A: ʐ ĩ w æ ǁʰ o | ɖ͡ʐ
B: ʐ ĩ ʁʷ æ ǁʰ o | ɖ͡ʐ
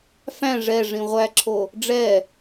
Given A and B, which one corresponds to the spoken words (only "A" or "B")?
B